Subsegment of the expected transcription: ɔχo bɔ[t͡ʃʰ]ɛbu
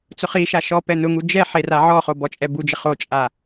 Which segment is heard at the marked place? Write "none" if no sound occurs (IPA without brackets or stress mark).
t͡ʃʼ